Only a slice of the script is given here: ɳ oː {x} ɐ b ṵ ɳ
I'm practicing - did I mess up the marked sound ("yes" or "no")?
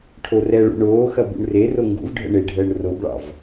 no